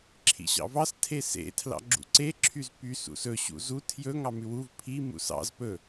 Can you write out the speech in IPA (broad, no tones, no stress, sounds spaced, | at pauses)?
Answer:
ǁʰ ḭ ɕ ɑ̰ v ɑ s tʰ e s ḛ tʰ l ɑ̰ ɡ͡ǁ ṵ ǀ e ǁʰ y z p y s ṵ s ɵ ɕ ṵ z u tʰ j ɵ ŋ ɑ m ʉ w u v pʰ i m ṵ s ɑ̰ z p ɵ